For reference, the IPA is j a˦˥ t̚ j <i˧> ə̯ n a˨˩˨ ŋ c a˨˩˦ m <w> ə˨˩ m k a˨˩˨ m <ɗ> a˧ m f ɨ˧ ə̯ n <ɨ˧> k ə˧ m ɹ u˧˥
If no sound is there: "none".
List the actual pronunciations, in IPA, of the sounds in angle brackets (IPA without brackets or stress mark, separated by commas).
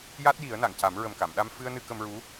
i˨˩˦, ɹ, ɗ, ɨ˧